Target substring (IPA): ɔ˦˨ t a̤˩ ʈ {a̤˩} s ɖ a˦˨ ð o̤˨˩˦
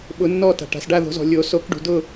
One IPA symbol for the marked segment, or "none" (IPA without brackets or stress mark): a̤˩